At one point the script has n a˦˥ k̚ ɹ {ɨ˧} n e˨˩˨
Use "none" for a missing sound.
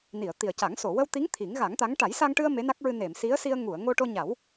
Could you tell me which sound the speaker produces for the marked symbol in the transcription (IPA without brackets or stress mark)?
ɨ˧